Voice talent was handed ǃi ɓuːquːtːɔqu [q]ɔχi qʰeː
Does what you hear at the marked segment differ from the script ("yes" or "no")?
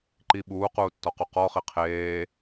no